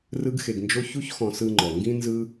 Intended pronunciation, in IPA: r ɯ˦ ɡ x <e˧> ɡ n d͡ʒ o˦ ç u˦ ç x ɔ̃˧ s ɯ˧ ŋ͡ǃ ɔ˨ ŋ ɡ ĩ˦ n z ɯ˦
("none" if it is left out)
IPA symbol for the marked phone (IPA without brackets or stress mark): e˧